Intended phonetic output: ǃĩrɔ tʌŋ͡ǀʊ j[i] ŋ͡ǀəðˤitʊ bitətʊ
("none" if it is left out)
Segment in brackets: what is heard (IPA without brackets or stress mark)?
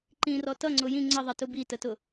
ĩ